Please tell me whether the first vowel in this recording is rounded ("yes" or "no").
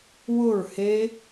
yes